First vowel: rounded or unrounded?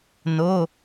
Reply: rounded